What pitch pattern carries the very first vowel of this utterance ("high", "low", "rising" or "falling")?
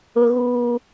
high